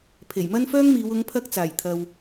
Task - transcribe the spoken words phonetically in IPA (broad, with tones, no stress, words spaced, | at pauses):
pʰe˨˩jmɐ˥nfœː˥ŋmiː˨˧w ʊ˨˧ŋpʰɐ˧k̚ t͡saː˨˩jt̪ʰɐ˨w